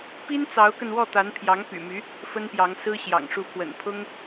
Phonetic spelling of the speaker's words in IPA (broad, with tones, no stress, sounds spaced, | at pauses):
p i˥ n t͡s ɑ˧˥ ʊ̯ k ə˧ n w ɔ˥˩ t̪ a˧˥ n pʰ j ɑ˧˥ ŋ p y̰˨˩ m y˧˥ | f ə˥ n p j ɑ˧˥ ŋ s ɹ̩˥ ɕ j ɑ̰˨˩ ŋ ʂ u˧˥ pʰ w ə̰˨˩ n pʰ ʊ˥ ŋ